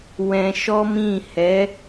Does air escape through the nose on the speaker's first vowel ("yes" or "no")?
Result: yes